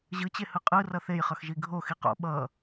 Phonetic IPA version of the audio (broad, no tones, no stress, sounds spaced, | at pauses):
ʑ ɯ t͡ɕ e h ɯ qʼ ɯ r ʌ θ e j χ ʌ x ʒ i ɡʱ o x i q o̰ ɓ ʌː